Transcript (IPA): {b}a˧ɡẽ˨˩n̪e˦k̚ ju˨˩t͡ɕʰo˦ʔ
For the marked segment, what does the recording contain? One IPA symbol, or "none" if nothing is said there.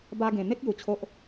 b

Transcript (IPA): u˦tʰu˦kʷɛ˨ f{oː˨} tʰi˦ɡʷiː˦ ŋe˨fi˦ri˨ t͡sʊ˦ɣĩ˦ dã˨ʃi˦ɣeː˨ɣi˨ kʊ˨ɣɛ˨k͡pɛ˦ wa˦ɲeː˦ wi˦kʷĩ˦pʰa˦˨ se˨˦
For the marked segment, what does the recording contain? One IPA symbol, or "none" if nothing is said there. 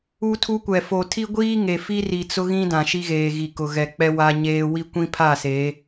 o˨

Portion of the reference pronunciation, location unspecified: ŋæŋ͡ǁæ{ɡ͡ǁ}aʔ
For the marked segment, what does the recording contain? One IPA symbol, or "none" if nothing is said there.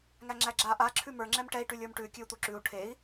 ɡ͡ǁ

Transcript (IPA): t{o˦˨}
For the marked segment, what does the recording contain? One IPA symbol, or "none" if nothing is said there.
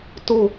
o˦˨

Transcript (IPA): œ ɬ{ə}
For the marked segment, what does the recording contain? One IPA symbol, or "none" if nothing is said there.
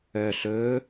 ɵ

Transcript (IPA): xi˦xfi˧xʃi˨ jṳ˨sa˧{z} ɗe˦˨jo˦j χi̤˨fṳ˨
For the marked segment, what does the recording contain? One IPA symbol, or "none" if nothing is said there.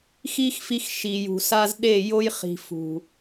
z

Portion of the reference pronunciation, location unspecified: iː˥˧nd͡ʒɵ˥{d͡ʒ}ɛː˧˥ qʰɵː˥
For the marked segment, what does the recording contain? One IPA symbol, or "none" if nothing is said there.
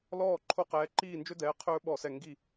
d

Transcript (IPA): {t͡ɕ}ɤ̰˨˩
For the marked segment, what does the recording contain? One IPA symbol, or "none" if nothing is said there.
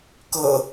k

